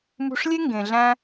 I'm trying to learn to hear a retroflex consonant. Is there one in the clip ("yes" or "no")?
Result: yes